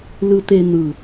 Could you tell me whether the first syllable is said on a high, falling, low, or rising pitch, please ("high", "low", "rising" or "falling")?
low